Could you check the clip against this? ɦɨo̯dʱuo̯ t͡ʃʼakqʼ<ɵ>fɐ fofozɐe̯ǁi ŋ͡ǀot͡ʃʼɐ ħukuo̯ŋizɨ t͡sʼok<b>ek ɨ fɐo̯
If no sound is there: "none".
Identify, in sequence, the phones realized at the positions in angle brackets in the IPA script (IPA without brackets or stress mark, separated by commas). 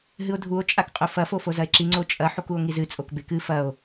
ɵ, b